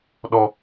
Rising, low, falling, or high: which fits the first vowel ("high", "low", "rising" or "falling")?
high